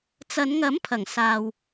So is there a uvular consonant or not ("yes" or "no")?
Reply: no